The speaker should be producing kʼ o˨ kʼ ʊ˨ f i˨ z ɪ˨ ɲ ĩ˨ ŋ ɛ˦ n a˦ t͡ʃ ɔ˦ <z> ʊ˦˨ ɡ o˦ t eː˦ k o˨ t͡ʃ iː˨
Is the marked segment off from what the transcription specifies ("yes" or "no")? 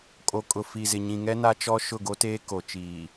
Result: yes